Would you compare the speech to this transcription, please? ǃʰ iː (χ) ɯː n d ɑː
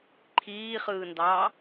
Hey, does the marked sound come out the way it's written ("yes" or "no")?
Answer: yes